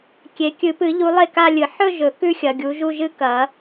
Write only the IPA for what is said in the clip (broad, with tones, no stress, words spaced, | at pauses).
kʲe˨˦ kʲɨ˨˩˦pɨ˨˩˦ʎu˨˦ lˠe˥˩ka˥˧lʲɨ˨˩˦ ħɵ˥˧ ʒɵ˨˩˦kʉ˥˧xʲɐ˨ɡʲu˨˦ ʒu˥˧ʒɨ˥˧ kɐ˨˩˦